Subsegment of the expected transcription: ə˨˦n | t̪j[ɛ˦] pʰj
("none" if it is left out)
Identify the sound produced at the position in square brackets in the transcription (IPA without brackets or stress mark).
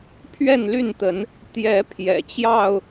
ɛ˨˦